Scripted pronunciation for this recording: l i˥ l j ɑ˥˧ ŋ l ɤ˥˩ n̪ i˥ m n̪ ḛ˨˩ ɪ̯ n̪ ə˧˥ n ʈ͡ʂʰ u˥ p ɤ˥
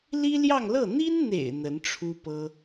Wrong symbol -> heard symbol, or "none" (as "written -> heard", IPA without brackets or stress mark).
m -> n